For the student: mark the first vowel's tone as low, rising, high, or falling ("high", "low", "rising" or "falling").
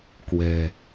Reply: low